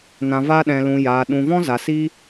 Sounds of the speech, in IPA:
n ã˨ v a˧ ɗ ɛ̃˨ l ũ˨ j aː˨ ɗ ũ˨ v ɔ̃˦ z a˨ s i˦

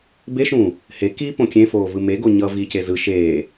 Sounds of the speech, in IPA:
b e ʃ ũː | h e k i p õ kʲ ẽ f oː v ɯ m e ɡ o ɲ ʌ v i c e z ɯ ʃ eː

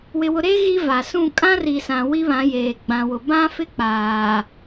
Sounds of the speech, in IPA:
w ɪ˨ w ʊ˨ ɾ e˦ ɣ i˦ v a˨ s ũ˦˨ kʼ ã˦ r i˨ s ã˨ w i˦ β ã˨˦ j eː˨ ɡ͡b ã˨ w ʊ˨ b ã˦ f ɪ˦ k͡p aː˨

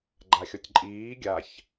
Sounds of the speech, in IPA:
ɡ͡ǃ a xʲ ɔ tʲ ǃʼ iː ɡʲ a ç

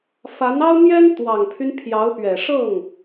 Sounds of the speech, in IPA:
f a˧˥ n ɑ˥ ʊ̯ n̪ j ɛ˥ n t̪ w ɑ˨˩ ŋ pʰ y˦ n pʰ j ɑ˧˥ ʊ̯ p ɥ ɛ˨˩ ʂ ɤ˥˩ ŋ

